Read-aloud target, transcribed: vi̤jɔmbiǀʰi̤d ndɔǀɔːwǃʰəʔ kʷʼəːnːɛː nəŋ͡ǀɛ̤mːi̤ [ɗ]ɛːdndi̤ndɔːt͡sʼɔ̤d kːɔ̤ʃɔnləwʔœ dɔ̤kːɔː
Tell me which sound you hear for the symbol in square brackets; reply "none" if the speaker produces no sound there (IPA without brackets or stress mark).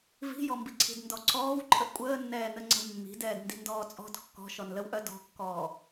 d